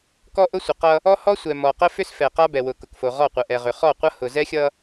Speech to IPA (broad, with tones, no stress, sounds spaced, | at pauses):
k ɔ˦ ʔ ʊ˦ sʷ ə˨ q ʌ˦ | ɔ˦ h ɔ˦ sʷ ɛ˨ m ɔ˨ q ə˦ f ʏ˦ s f ɛ˨ q a˦ b ɛ˨ w ʊ˨ k ʊ˨ k f o˨ ʁ ɔ˦˨ qʷ ə˨ ʔ ɛ˨ ʁ ʏ˨ χ ɔ˦˨ qʷ ʌ˦ h ʊ˨ z ɛ˦ xʲ ʌ˦